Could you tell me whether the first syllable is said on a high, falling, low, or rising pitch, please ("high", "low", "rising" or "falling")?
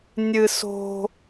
high